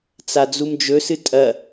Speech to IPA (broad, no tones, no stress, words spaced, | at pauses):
t͡sad͡zumd͡ʒɵsɨ tʼɐ